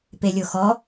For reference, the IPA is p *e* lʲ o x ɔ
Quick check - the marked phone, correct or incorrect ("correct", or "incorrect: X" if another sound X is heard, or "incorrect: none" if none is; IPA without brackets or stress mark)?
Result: correct